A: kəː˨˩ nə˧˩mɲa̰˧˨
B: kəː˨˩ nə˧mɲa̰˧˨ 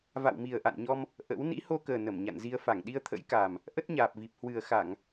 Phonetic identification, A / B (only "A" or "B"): A